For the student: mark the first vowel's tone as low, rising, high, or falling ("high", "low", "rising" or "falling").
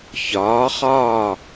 rising